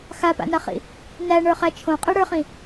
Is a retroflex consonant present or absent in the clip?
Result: present